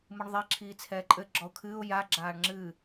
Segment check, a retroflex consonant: present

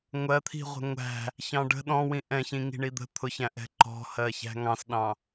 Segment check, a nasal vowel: present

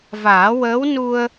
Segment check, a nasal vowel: absent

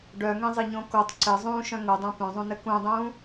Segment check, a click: present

